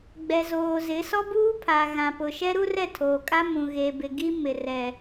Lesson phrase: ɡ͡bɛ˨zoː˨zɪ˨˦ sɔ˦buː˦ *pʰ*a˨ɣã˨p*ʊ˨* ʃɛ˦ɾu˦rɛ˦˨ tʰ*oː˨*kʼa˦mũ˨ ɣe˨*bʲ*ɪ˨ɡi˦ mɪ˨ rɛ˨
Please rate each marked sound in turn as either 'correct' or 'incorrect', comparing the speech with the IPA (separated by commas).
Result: correct, correct, correct, incorrect